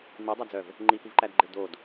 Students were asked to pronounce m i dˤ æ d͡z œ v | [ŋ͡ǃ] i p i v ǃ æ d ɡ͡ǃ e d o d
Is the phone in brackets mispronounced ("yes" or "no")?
no